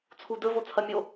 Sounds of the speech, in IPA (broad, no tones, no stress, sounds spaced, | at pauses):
t͡sʰ u d ɵ v o t͡sʰ ɐ mʲ o